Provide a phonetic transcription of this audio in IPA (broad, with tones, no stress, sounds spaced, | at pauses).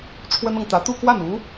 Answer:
ʈ͡ʂʰ w ə˥ n ɤ˨ ŋ t̪ ä˧˥ t̪ u˥˧ k w a˥˩ n u˧˥